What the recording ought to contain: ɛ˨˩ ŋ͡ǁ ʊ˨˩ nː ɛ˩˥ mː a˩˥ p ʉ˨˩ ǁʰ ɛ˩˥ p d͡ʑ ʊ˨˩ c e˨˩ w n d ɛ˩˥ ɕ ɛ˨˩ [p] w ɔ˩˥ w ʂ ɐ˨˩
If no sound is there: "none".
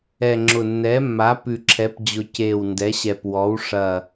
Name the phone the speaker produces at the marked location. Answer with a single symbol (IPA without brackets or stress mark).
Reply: p